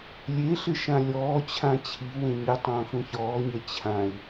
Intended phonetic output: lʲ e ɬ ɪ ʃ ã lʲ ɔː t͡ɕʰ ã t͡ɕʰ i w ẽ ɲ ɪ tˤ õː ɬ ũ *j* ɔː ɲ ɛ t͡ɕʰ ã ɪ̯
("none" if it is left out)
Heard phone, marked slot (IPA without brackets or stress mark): ç